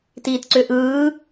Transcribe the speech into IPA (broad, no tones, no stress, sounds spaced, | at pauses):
t iː t ǀ ʏ ʔ ɯː